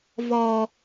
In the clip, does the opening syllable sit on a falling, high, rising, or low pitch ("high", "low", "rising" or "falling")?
high